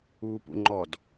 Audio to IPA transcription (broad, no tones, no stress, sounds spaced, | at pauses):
uː p ṵ ŋ͡ǃ ɔ d